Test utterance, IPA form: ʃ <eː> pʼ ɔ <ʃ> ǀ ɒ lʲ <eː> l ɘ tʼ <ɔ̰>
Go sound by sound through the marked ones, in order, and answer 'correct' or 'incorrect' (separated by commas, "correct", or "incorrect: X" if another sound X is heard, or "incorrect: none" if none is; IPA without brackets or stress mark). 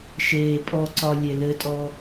correct, incorrect: none, incorrect: e, incorrect: ɔ